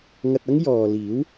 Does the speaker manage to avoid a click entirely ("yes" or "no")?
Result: yes